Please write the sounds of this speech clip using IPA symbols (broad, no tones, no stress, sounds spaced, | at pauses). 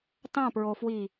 t ɑ̃ p ɹ o f w i